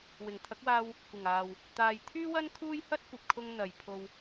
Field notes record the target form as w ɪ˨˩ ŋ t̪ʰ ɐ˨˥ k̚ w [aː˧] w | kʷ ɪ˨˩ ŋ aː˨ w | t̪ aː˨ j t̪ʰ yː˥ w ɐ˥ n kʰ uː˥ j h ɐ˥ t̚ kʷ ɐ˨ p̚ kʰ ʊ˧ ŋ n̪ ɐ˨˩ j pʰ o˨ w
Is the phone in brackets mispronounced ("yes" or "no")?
no